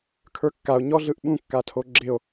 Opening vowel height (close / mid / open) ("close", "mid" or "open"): mid